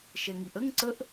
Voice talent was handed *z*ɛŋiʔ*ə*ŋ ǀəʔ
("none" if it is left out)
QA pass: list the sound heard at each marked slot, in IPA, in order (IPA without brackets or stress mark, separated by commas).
ʃ, ə